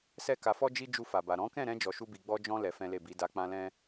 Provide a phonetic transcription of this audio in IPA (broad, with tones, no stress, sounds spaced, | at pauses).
s ɛ˦ k a˧ f ɔ˦ d͡ʒ i˦ d͡ʒ u˧ f a˨ b a˨ ɾ ɔ̃˨˦ k ɛ̃˦˨ ɾ ɛ̃˧ d͡ʒ ɔ˧ ʃ u˦ b i˧ ɡ͡b ɔ˦ d͡ʒ ɔ̃˦ l ɛ˧ f ɛ̃˦ l e˦˨ b i˨˦ d a˧ k͡p ã˦ l ɛ̃˦